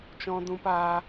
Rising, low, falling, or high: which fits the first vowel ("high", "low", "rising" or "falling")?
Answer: high